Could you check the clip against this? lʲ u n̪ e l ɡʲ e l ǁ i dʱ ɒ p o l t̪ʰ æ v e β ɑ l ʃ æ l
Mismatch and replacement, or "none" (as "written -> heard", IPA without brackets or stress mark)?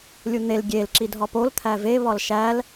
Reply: ɑ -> ɒ